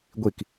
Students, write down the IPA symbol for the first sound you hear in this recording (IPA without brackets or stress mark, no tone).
ɡʷ